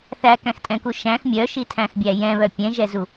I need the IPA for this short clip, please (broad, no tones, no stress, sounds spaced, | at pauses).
θ æ k æ̃ x tʼ ɛ̃ k u ʃ æ̃ x mʲ œ ʃ i tʰ æ̃ x bʲ æ j ɛ̃ β œ pʲ ɛ̃ ʒ ɛ z u